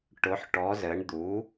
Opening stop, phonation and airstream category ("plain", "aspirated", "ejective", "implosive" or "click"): plain